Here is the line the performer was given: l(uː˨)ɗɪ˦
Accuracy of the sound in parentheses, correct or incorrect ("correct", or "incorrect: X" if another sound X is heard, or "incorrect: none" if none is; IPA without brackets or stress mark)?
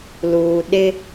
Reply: correct